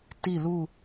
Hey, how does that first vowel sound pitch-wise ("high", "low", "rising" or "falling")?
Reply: falling